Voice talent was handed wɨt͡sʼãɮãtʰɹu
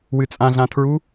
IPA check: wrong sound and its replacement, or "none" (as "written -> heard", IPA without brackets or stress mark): none